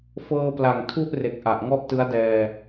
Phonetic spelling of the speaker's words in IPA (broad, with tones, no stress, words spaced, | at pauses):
fɤː˧pla˨˩ŋ tʰu˥˩ʔre˨˩k̚ ʔa˨˩ʔŋɔ˥˩ʔ tɯ˦˥a̯dɛː˧